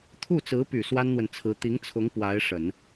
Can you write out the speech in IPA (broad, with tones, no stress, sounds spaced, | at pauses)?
t̪ʰ u˥˩ t͡s ɹ̩˧˥ p y˨˩ s w a˥ n n̪ w ə˨ n t͡sʰ ɹ̩˧˥ t̪ i˧˥ ŋ t͡sʰ ʊ˧˥ ŋ p w a˧˥ ɪ̯ ʂ ə˨˩˦ n